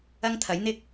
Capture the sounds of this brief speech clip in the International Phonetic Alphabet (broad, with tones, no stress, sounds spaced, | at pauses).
ɐ˥ ŋ t̪ʰ ɐ˨˥ j n̪ ɪ˥ k̚